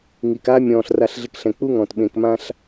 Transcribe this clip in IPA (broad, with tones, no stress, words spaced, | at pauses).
ŋi˨ka˦ mʲɔ̃ː˨ɬra˧ɬɮɪ˧kɬɛ̃˨ k͡pu˦ŋɔ̃˨t ɓẽ˨kmã˦ɬ